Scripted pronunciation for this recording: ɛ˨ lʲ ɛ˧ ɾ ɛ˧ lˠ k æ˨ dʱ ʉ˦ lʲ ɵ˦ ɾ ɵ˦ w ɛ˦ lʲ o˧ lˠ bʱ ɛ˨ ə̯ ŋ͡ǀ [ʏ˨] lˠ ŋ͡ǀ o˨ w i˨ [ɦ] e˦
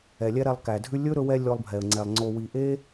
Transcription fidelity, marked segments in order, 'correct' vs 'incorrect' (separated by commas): incorrect, incorrect